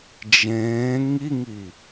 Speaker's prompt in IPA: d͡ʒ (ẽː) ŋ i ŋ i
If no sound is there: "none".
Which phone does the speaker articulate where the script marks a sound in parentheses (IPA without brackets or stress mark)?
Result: ẽː